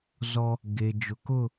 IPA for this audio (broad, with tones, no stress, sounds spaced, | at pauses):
z ɔ˦ | ɡ e˨ d͡ʒ ʊ˨ k ʊ˦˨